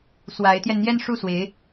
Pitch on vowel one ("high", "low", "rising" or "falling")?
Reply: rising